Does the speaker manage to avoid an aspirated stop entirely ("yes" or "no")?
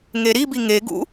yes